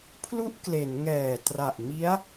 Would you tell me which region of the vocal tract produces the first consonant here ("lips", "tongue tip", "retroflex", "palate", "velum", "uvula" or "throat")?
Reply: lips